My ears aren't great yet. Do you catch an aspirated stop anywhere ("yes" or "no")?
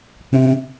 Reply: no